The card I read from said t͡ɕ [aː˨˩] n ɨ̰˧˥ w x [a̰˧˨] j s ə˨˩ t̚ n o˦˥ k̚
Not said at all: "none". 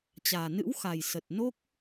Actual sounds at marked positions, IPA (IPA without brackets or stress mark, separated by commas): aː˨˩, a˨˩